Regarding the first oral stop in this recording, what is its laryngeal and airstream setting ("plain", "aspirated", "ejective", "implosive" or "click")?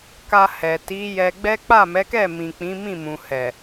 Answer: plain